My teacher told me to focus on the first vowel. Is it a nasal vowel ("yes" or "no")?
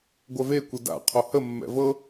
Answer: no